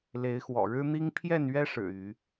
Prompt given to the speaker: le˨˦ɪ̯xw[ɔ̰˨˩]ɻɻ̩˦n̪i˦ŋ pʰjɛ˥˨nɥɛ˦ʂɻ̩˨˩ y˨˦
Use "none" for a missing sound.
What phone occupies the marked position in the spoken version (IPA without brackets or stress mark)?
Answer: ɔ̰˨˩